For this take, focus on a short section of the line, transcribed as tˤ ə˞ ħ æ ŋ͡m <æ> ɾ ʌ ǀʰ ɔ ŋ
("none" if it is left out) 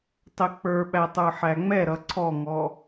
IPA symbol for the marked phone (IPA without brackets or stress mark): ɛ